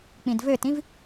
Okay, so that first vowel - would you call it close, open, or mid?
close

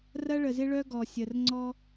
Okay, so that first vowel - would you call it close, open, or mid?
open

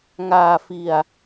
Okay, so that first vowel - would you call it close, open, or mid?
open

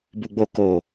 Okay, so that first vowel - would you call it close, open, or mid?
close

